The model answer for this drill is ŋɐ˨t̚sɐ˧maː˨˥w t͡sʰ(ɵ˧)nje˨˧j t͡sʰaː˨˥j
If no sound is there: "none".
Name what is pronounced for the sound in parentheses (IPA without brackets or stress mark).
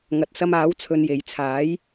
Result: ɵ˧